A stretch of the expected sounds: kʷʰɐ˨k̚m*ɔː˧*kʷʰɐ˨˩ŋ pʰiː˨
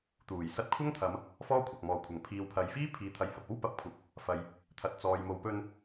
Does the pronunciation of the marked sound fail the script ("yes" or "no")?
yes